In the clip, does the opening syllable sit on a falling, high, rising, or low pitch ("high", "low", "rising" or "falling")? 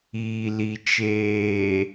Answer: low